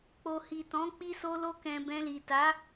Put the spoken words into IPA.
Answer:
k͡p o˨ h i˨ t ɔ̃˨˦ k͡p i˧ s o˧ l o˧ k ɛ̃˨ b ɛ̃˧ l i˨ t a˨˦

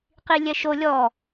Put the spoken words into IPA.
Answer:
q i lʲ ɛ ʃ o lʲ ɔ

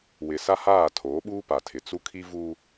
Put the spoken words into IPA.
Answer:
w ɪ˨ s a˦ h aː˦˨ tʰ oː˨˦ ɓ uː˦ p a˨ tʰ ɪ˨ t͡s u˦ kʰ i˦ v u˦

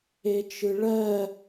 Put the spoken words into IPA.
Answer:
e t͡ʃ ɯ ɭ ɜ

